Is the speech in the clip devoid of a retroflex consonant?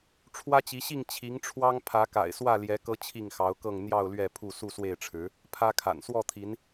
no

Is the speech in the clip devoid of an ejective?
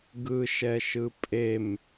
no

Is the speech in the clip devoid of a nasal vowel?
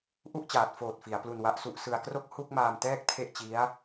yes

